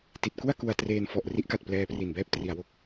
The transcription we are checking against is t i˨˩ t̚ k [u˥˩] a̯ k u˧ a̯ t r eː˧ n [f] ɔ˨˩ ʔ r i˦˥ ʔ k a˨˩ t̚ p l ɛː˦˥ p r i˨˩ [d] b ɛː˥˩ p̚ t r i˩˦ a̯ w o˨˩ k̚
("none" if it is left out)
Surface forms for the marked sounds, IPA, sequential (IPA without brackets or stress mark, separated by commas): u˥˩, f, n